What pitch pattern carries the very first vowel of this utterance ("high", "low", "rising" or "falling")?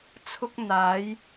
high